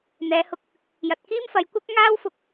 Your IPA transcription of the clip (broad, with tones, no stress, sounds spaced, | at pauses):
n̪ ɛː˨˧ h ʊ˧ k̚ | j ɐ˨ t̚ k iː˥ m f ɐ˨˧ j kʷ ɐ˥ k̚ ŋ aː˥ w f ʊ˧ k̚